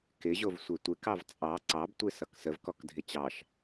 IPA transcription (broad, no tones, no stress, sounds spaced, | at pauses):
k ɪ ʑ o v sʷ e tʷ e k ɑ v t͡sʼ ɑ ǀ ɑ b tʷ e s ʌ k s ə v k ɔ k dʱ ɪ t͡ɕ ɑ ʃ